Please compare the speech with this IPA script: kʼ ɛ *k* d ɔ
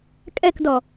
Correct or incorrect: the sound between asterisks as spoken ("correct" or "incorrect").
correct